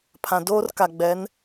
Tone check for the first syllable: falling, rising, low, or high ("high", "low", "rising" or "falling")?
low